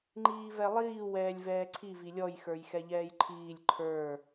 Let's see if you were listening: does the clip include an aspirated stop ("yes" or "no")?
yes